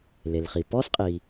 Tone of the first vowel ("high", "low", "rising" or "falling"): low